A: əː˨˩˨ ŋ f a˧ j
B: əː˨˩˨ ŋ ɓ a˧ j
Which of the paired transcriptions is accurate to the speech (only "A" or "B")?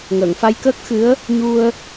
A